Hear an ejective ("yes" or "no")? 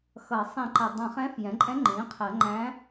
yes